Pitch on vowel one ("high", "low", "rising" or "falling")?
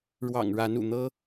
low